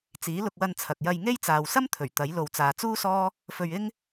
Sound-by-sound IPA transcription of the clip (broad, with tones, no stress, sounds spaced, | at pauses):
t͡s iː˨˥ l ʊ˧ k̚ w ɐ˧ n t͡sʰ ɐ˨ k̚ j ɐ˧ j ŋ e˥ j t͡s aː˨ w s ɐ˥ m t̪ʰ ɵ˨˩ ɥ t̪ ɐ˨˥ j l o˨ w t͡s aː˨ t͡s uː˥ s ɔː˥ | f ɵ˧ ɥ ɪ˥ ŋ